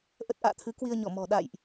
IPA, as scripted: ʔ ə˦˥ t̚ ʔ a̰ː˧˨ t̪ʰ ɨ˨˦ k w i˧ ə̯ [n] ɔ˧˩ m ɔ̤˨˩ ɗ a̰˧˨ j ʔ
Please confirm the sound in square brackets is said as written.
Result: no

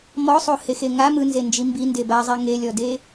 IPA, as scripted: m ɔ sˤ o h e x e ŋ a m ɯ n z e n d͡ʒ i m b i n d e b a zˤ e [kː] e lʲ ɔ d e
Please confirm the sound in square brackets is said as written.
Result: no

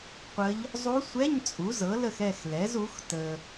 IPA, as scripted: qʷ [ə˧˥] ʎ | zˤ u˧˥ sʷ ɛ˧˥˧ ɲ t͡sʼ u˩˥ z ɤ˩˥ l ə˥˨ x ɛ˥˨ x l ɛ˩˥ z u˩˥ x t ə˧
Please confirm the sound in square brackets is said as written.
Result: yes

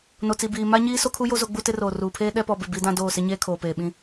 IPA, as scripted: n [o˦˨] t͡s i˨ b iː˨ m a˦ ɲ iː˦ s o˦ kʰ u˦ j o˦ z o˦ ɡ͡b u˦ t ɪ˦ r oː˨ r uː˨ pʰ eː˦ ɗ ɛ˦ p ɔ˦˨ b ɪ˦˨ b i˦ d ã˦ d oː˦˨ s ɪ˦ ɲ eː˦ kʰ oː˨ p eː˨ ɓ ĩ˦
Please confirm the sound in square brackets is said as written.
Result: no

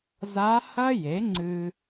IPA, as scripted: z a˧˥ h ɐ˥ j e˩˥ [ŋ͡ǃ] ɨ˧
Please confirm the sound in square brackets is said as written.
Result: no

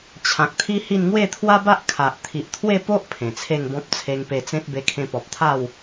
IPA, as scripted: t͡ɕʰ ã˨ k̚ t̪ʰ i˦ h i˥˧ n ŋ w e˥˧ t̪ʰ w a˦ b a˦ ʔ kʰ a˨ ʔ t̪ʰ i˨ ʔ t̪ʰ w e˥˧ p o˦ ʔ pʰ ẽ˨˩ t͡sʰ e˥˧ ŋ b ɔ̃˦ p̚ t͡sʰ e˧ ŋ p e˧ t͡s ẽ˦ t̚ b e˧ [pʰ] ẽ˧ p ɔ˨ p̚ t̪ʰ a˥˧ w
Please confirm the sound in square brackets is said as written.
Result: no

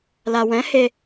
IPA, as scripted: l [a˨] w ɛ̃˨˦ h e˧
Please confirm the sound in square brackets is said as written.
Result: yes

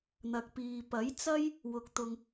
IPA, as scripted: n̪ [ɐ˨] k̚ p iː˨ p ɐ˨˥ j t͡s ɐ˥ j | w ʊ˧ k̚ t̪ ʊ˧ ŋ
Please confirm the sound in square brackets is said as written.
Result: yes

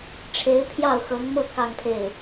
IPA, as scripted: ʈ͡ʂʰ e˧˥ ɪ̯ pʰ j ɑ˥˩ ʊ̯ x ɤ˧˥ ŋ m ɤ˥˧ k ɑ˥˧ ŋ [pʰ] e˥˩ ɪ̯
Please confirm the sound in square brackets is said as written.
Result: yes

